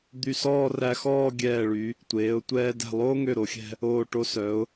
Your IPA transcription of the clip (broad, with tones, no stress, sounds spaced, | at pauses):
d̪ y˧˩ s ɔː˥˧ r æ˧ x ɔː˥˧ ɡʲ ɛː˧˩ ɭ y˩˧ | tʷ eː˩˧ ʊ̯ tʷ ɛː˧ d ɛ̤˧˩ lˠ oː˥ ŋ ø˧˩ ɾ o˩˧ xʲ ɛ̤˧ | oː˧˩ ʈ o˧ s œ˩˧ ʊ̯